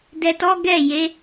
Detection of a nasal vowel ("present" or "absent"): absent